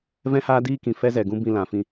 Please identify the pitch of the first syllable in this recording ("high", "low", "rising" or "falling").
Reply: high